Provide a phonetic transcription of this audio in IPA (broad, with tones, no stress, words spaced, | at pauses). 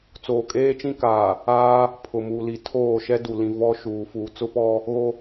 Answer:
t͡soː˨kʼeː˦t͡ʃĩ˦kaː˨ | aː˦ | pʰʊ˨mu˨li˨ tʰoː˦˨ʃɛ˦ du˨lĩ˨ vɔ˦ʃuː˨ fuː˨t͡sʊ˦pɔ˦ | ɣo˦